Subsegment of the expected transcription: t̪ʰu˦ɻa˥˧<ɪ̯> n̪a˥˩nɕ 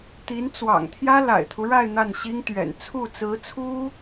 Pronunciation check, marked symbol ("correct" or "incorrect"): correct